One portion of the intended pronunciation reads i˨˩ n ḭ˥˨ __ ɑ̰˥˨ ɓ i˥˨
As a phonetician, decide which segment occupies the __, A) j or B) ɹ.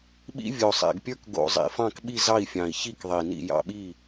A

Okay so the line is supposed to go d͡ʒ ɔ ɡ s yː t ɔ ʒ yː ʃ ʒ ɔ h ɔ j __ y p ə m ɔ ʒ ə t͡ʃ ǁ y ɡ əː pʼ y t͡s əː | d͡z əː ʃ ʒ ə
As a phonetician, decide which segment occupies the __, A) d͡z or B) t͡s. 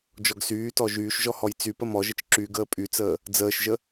B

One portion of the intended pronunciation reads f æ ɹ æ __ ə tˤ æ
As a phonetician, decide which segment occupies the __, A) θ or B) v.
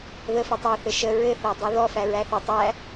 A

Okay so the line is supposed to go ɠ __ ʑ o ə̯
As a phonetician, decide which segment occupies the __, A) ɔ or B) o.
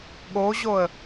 B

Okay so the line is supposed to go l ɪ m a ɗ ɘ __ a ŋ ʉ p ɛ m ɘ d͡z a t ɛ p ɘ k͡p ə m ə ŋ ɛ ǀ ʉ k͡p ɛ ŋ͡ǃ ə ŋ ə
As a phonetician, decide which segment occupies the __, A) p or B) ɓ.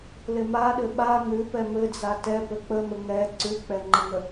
B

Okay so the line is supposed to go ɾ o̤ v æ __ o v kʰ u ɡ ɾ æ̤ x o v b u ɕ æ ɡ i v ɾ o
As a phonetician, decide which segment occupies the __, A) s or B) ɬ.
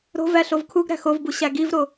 B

